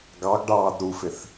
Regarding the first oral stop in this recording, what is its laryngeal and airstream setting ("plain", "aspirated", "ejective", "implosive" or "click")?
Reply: plain